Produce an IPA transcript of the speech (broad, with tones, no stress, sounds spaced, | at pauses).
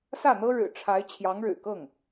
s ä˥˩ n̪ ɤ˥ ɻ ɻ̩˨˩ ʈ͡ʂʰ a˧˥ ɪ̯ t͡ɕʰ j ɑ˧˥ ŋ ɻ ɻ̩˨˩ k ɤ˥˩ ŋ